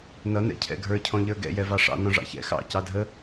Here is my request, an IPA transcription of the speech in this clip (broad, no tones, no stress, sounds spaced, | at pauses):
n ʌ n ɛ̰ cʰ ɛ̰ ɡʱ ə˞ cʰ ɔ̃ ʎ ə˞ ɡ ɛ̰ j ɛ v ɑ ʂ ɑ̰ n ɔ̃ ʐ ɑ̰ ç ɛ̰ x ɑ̰ c ɑ dʱ ə